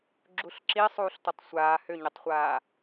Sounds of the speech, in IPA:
ɡ͡ǁ u ɬ ǁ i sˤ uː ɬ t ʌ tˤ sʷ aː h ʏ ɲ ʏ tˤ χʷ aː

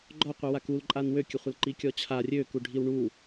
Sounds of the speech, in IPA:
ɡ͡ǃ ɔ qʷ i w a k u l ǃʼ a n w ø kʲ ə χʷ ə l ǃ i kʲ ɔ t͡ɕʰ a rʲ ø k u ɖʱ i w ɳ u

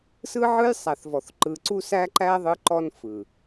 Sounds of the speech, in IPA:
s ɯ˦ ʕ ɯ˦ j sˤ æ˨ θ v ɔ˨ θ ǃ ɯ˨ ǀ u˦ s æ˦ ǃ æ˦ ðˤ ɯ˦ ǃ ɔ˦ n f ɯ˨

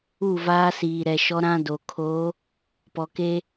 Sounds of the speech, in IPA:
u˦˨ v aː˦ s iː˨ ɾ ɛ˨ ʃ ɔ˦ ɾ ã˦ d o˨ kʰ o˨˦ | p ɔ˨ k e˦

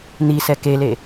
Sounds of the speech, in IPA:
n̪ i s ɛ k e l e

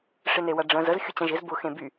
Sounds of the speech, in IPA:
ʂ ɪ n e w ɐ ɖ͡ʐ ə̃ z ə z xʲ ʊ t͡ɕ ɐ̃ ʒ ɪ z b ʊ x ẽ b y

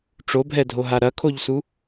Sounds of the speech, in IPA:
ʈ͡ʂ o bʱ ɛ dʱ o ɦ a ɾ ɐ kʰ o ʎ s u

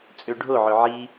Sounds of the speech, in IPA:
t͡sʼ ø ɖʱ o ʕ ø ʕ i

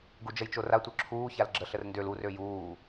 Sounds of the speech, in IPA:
ɡ u d͡ʒ ə j t͡ʃ o r a tʷ œ ǁʰ uː ç a l ɡ͡ǁ ə ɬ ə r n d ø l u r ø j uː

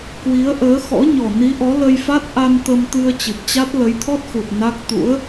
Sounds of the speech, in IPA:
k w i˨˦ ə̯ ʔ əː˨˦ x ɔ̰˧˥ ɲ ɔ˨˩ n i˨˦ ʔ ɔ˨˦ l ə˧ j f a˦˥ t̚ ʔ a˧ n t̪ ə˧ m t̪ ɨ˧ ə̯ t͡ɕ ɨ˨˩ p̚ t͡ɕ a˦˥ t̚ l ə˨˦ j t̪ʰ ɔ˦˥ t̚ x u˨˩ t̚ n a˦˥ k̚ t̪ ṵ˧˥ ə̯

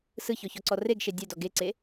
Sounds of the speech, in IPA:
s ɯ ç ɔ ç ɔ ǀ ɔ r e ɡ ʃ e dʲ ɛ d ɔ ɡ e ǀ e

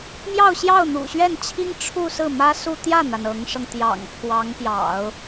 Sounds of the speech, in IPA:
m j ɑ˥˧ ʊ̯ ɕ j ɑ˥˩ ʊ̯ n̪ ṵ˨˩ ɕ ɥ ɛ˥˩ n t͡ɕʰ i˥ ŋ ʈ͡ʂʰ u˥˧ s ɹ̩˥˩ m ä˥ s u˥˧ t̪ j ä˥˩ n̪ a˩ n ɤ˧˥ ŋ ʂ ɤ˧ ŋ t̪ j ɑ̰˨˩ ŋ pʰ w ɑ˧˥ ŋ p j ɑ̰˨˩˦ ʊ̯

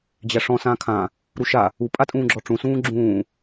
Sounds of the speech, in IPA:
d͡ʑ æ ʂ ɔ̃ s ãː kʰ ã | ɾ u ʃ a | u pʼ a tʼ ũː ɡ͡ǁ ɔ ʈ͡ʂ ũ s ũː ɡ͡ǁ ũː

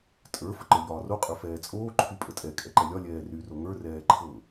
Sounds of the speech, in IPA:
tʼ ə˞ f ə ǃ ə˞ ʎ ɒː r o qʼ ə˞ f ɛː t͡sʼ oː ǃʰ y pʼ ə tʼ ɛ kʼ ɛ ǃ ɛ lʲ ɒ lʲ ɛː r y r o ŋ ə˞ r ɛː ǃʰ ɤ

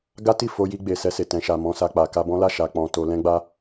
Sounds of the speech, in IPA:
ɡ a˦ t i˦˨ f o˧ j i˧ ɡ͡b e˨ s ɛ˧ s e˨ t ɛ̃˨ ʃ a˨ m ɔ̃˧ s a˧ k͡p a˨ k a˧ b ɔ̃˦ l a˦˨ ʃ a˨ k͡p ɔ̃˨ t o˧ l ɛ̃˦ ɡ͡b a˦

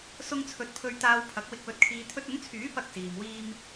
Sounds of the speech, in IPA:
s ʊ˥ ŋ t͡sʰ ɵ˧ t̚ pʰ ɵ˥ ɥ t̪ aː˥ w pʰ ɐ˨˥ k̚ w ɪ˧ k̚ w ɵ˧ t̚ kʰ iː˧ t̪ʰ ɵ˧ t̚ ʊ˨˥ ŋ t͡sʰ yː˨˥ p ɐ˧ k̚ s iː˨ m w iː˥ m

